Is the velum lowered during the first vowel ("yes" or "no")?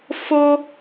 no